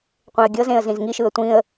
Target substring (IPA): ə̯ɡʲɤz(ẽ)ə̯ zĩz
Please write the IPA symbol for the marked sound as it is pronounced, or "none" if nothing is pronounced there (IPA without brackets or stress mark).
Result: ẽ